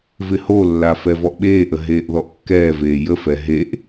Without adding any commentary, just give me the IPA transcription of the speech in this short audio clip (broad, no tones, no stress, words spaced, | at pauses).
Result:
vɪholːa fɛvɔʔɓeːʔə ɦeːʔðɔʔkːɛːveː jəfɛ ɦeʔ